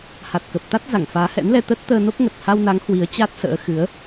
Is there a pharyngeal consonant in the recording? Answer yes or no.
no